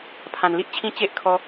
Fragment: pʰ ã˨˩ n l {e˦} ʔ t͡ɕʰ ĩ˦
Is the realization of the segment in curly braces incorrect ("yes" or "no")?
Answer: yes